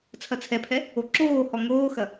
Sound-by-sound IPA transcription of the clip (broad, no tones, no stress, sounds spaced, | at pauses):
t͡sʰ ɐ t͡sʰ ɛ pʰ ɛ | o ǁ oː h ɔ ŋ oː x ɐ